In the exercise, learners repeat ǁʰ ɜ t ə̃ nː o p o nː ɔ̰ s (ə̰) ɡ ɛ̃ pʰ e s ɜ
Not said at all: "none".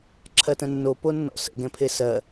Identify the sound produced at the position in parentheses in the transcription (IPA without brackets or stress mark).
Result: ə̰